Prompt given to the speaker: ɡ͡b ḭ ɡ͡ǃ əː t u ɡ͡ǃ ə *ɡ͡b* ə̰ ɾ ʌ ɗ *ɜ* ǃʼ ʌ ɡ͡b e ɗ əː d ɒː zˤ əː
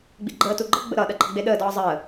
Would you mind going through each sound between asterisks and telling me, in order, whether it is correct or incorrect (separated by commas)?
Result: correct, correct